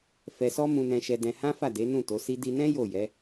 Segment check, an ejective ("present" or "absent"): absent